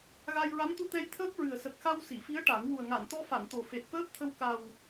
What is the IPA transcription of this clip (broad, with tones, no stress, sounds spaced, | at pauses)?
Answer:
ɣ a˧ j ɹ a˧˥ m t̪ u˧ t̪ ɛ˧ j t̪ʰ əː˦˥ k̚ ɹ ɨ˨˩ ə̯ s ə˨˩ k̚ x a˧ w s i˨˩˨ f i˧˥ ə̯ ʈ a˨˩˦ ŋ w u˨˩ ə̯ ŋ a˨˩˨ n t̪ ɔ˧ f a˨˩˨ n t̪ o˨˩ f e˨˩ t̚ f əː˦˥ p̚ t̪ʰ ə˧ w k a˨˩ w